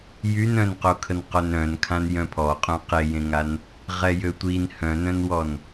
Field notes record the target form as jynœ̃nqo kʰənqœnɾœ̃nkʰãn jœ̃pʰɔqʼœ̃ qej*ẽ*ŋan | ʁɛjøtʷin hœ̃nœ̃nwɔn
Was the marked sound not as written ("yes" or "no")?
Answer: no